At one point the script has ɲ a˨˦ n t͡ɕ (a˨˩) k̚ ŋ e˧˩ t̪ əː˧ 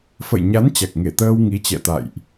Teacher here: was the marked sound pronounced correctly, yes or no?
yes